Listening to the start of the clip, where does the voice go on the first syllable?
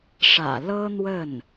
low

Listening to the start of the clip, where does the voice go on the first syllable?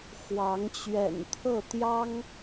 rising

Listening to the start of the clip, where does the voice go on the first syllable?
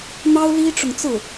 high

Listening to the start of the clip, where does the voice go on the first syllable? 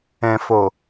low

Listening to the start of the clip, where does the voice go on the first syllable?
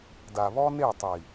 low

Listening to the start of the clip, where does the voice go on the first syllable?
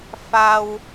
low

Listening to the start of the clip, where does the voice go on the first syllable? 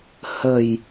low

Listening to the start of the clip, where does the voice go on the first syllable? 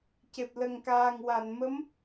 low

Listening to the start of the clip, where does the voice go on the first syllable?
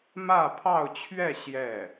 falling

